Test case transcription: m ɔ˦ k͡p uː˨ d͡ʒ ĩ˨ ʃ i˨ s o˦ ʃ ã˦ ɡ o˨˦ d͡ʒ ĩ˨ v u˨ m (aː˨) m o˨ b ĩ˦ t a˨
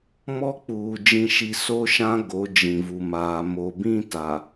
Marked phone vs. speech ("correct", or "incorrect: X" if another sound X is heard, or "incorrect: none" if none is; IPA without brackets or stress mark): correct